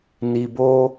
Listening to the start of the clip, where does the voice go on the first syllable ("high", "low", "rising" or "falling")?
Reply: low